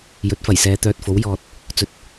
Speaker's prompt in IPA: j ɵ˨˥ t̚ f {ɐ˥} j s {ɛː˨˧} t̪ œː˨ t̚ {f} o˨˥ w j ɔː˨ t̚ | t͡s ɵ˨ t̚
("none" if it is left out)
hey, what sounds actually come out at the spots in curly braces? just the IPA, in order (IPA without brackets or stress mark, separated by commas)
ɐ˨˩, ɛː˨˧, f